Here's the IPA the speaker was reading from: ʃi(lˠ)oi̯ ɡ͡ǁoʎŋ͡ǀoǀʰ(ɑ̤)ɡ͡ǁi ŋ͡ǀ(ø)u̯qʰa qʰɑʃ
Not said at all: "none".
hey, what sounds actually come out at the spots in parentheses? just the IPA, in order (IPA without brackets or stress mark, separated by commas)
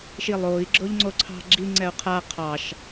lˠ, ɑ̤, ɛ